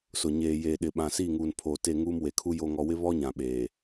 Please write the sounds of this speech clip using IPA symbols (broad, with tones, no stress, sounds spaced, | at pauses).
s ʊ˨ ɲ eː˨ j eː˨ ɗ ɪ˨ ɓ ã˨ s iː˦˨ ŋ uː˨ n pʰ oː˨ t e˦˨ ŋ uː˦ m w e˨ kʰ u˦ j o˨ ŋ ɔ˨ w ɪ˦ β ɔ˦ ɲ ã˨ ɓ eː˨